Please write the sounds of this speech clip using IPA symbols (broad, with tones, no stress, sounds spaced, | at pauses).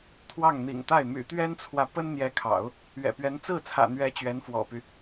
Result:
t̪ʰ w ɑ˥˩ ŋ n̪ ḭ˨˩ ŋ t̪ a˥˩ ɪ̯ m y̰˨˩ t̪ ɥ ɛ˥ n t͡sʰ w ä˨ p ə˥ n n̪ j ɛ˧˥ kʰ ɑ̰˨˩˦ ʊ̯ | ɥ ɛ̰˨˩ p ɥ ɛ˧˥ n t͡s ɹ̩˥˩ t͡sʰ ä̰˨˩ n̪ ɥ ɛ˧˥ t͡ɕ ɥ ɛ˧˥ n f w ɔ̰˨˩ p y˦